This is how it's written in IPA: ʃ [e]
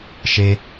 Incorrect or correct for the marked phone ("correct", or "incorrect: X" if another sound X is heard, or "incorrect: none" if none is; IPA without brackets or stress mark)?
correct